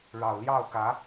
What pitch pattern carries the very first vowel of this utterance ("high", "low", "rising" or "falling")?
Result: low